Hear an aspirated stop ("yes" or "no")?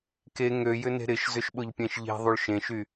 no